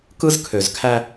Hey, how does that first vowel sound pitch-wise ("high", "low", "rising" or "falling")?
high